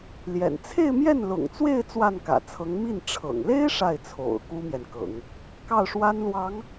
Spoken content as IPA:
l j ɛ̰˨˩ n t͡sʰ e˥˧ ɪ̯ m j ɛ˥˩ n l ʊ̰˨˩ ŋ t͡s w e˥˧ ɪ̯ t͡s w a˥˩ n k ä̰˨˩ t͡sʰ ɤ˧˥ ŋ m i˥˩ n ʈ͡ʂʰ ɤ̰˨˩ ŋ l e˥ ɪ̯ ʂ a˥˩ ɪ̯ t͡sʰ o̰˨˩ ʊ̯ k u˥ m j ɛ˨ n k ɤ̰˨˩˦ ŋ | k ɑ˥˩ ʊ̯ ʂ w a˥ n l w ɑ˧˥ ŋ

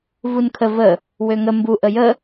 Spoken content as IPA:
v u n kʰ ə v ə | w ø ŋ ə m b u ʔ ə j ə

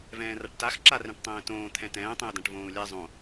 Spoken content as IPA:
v ɛ̃ː r a ʈ t a x ǁ a r ɛ̃ ʈ tˤ ɛ̃ː t õː t̪ʰ ɛ̃ t ɛ̃ː tˤ ɛ̃ u̯ d ã ʈ v õː u̯ lʲ ɛ zˤ õ

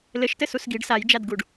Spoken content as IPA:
l ɘ ʃ t ɘ s u s ɡ i ɖ s a j d͡ʒ a d ɡ u ɖ

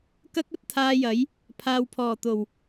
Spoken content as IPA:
k ɐ˥ k̚ ɐ˨˥ t̚ t̪ʰ aː˧ j ɐ˨˥ j | pʰ aː˨ w pʰ ɔː˨˩ t̪ o˨˩ w

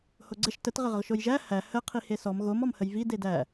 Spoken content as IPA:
h o ɡ͡ǀ ə ʃ t ə t ʁ ə ʁ ə ʁ ʃ o j ʒ æ h æ h ə qʰ i h e s ɔ m ɣ o m ɔ m h ə j v i d e d æ

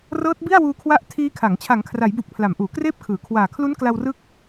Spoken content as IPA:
r ɤː˦˥ t̚ b i˥˩ a̯ w uː˧ kʰ w a˦˥ ʔ tʰ iː˦˥ kʰ a˩˦ ŋ t͡ɕʰ a˩˦ ŋ kʰ r a˩˦ j b u˨˩ k̚ pʰ l a˩˦ m ʔ uː˩˦ k r eː˥˩ p̚ kʰ ɯː˩˦ kʰ w aː˨˩ kʰ l u˦˥ n k l a˧ w r ɯ˦˥ k̚

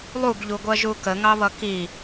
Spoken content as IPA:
lˠ u ɡ ʎ u ɡʷ ɜ ʒ u k ə ŋ ɑ β ʌ k i

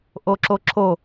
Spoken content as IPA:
ʔ o ǁ o ǁ o

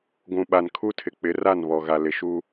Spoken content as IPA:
ɡʷ ũ˨ ɓ a˨ n kʰ u˦ tʰ ɪ˨ k͡p ɪ˨˦ r a˦˨ n β ɔ˨ ɣ a˨ l ɪ˨ ʃ u˦

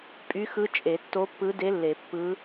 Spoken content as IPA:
pʼ y˧˥ x ɯ˧˥ t͡ʃʼ e˨˩˦ tː o˧˥ pː ɯ˧˥ d e˧˥ lː e˨˩˦ pː ɯ˧˥

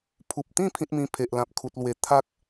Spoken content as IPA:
pʰ u˨ p̚ t̪ ĩ˥˧ pʰ ĩ˦ t̚ m ĩ˧ pʰ e˨ ʔ l ã˨ p̚ kʰ u˨ t̚ l w e˨˩ t̪ʰ a˦ k̚

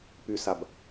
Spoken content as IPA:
p y s a b

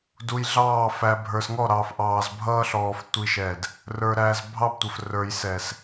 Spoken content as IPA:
d u˨ j ɮ ɑː˦˨ f æ˨ bʱ ə˞˨ s ŋ ɔ˦˨ ɾ ɑː˨ f ʔ ɑː˨ z bʱ ʌː˦ ɬ ɔː˨ f tʷ i˦ ʃ ɛ˦˨ d | r ə˞˨ ɾ æ˨ z bʱ ɑ˦ b tʷ ə˨ f r ə˞˨ j s ɛ˨ s

